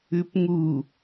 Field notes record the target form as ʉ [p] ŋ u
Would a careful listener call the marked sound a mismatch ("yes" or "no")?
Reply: no